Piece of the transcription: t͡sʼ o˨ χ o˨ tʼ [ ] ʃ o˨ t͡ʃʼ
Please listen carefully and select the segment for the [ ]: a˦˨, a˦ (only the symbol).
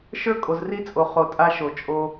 a˦